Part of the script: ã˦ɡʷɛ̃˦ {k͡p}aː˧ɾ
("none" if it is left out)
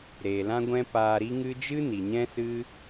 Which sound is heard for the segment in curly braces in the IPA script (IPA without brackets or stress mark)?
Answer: p